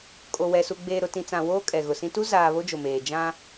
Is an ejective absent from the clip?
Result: no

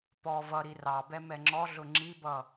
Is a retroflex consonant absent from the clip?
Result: yes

